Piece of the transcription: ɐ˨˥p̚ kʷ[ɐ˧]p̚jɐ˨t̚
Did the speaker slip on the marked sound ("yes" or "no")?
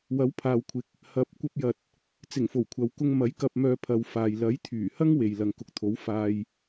no